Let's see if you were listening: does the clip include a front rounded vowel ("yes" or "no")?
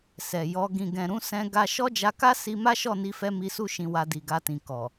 no